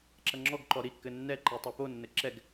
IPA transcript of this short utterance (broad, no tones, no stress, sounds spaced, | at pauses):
ǁ ɐ ŋ͡ǁ ɔ ɡ ǃ ɔ ɾ i kː ɘ nː ɛ ǃ i tˤ ɛ p o nː ɘ ǁ ɛ ɡ